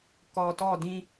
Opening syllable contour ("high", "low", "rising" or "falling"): low